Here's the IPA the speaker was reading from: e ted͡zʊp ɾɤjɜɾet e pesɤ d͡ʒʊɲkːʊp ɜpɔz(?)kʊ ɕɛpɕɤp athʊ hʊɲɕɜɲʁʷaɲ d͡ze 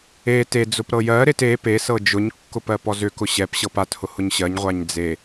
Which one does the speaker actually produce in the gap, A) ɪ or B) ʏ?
B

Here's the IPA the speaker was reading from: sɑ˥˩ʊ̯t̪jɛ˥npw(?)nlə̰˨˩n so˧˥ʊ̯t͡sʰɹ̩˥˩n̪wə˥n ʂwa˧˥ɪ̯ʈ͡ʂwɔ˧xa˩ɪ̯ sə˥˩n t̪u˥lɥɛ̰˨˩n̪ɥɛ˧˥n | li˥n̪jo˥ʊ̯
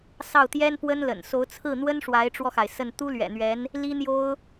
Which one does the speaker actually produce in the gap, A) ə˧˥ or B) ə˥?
B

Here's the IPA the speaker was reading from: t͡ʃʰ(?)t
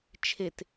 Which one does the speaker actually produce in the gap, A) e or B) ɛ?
A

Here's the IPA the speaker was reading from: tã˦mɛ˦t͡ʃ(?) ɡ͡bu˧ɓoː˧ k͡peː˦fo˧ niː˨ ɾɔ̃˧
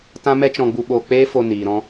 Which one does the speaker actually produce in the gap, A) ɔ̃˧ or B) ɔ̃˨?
A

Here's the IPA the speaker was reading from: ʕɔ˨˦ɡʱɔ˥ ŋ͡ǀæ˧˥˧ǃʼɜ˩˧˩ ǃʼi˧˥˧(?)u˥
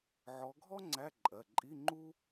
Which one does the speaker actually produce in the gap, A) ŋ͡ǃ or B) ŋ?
A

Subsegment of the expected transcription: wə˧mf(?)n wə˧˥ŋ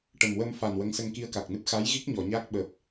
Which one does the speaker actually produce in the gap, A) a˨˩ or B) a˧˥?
A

